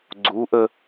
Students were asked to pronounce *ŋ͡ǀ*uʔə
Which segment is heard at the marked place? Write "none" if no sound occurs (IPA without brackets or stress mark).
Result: ɡ͡ǀ